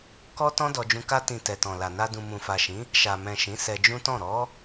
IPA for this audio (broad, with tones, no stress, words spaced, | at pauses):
kɔ˦ tɔ̃˦dɔ˧d͡ʒũ˧ ka˦ tĩ˧ tɛ˨tɔ̃˨la˨na˧ dũ˨mũ˨fa˨ʃĩ˨˦ | ʃa˨mɛ̃˨ ʃĩ˨˦sɛ˧d͡ʒũ˦tɔ̃˦˨ ɾɔ˨˦